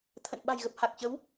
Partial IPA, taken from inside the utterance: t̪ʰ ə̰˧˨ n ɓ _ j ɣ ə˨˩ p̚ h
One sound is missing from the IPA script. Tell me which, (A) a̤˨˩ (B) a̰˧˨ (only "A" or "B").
A